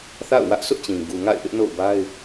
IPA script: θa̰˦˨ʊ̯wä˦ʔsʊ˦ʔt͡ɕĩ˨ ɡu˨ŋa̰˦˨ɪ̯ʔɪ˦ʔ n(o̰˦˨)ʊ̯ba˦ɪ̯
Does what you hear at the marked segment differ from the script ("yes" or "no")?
no